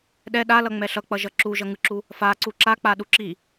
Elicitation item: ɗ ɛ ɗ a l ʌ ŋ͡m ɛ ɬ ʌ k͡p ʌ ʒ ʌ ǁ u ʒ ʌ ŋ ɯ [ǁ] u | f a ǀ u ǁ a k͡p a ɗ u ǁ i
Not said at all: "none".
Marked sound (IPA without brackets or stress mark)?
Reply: ǁ